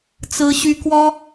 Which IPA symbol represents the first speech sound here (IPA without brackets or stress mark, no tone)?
t͡s